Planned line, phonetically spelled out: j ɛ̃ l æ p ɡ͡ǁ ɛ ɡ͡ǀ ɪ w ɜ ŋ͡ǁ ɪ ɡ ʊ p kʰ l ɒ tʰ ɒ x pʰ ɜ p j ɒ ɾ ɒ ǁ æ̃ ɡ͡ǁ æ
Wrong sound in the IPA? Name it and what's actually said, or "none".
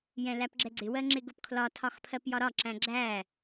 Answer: none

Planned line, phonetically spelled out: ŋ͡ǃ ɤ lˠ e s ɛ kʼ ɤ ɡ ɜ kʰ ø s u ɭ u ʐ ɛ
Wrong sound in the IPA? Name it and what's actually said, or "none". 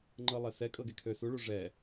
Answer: ɜ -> ɛ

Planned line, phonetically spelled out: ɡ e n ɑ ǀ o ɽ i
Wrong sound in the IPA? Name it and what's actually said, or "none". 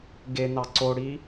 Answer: none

